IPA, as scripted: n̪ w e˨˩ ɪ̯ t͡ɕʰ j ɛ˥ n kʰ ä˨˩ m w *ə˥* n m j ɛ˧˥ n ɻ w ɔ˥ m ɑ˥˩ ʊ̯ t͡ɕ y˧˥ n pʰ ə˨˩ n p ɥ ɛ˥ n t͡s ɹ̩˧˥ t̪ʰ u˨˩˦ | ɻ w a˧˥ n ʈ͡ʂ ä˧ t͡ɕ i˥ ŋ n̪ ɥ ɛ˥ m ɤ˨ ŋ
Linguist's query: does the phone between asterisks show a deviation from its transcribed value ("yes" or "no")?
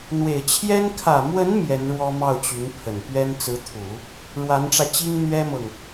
yes